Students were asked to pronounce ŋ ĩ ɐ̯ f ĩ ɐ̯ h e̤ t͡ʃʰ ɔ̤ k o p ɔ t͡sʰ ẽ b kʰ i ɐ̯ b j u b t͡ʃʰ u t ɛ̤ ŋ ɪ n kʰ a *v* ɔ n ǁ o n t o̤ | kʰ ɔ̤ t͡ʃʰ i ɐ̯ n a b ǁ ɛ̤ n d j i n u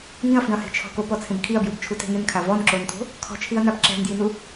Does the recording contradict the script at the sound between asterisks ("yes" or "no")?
no